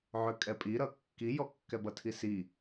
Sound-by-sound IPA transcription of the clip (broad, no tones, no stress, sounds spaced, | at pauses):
ʕ ø kʼ ɛ pʼ i ɾ ʌ kː i j ɔ kː ɛ b ʌ tʰ i s i